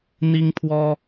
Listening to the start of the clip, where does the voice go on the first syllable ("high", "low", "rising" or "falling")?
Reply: high